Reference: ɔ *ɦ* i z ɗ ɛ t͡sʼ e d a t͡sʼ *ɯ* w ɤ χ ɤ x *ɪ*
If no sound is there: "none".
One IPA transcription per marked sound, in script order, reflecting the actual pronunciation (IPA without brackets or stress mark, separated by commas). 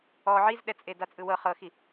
ʕ, ɯ, i